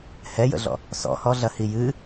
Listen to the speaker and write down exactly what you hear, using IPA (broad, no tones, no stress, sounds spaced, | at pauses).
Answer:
h ɛ j ə̰ ɮ ɔ̰ | s ɔ̰ h ɔ ɮ ɐ h i j ɨ